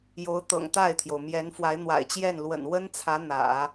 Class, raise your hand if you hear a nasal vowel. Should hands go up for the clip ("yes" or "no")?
no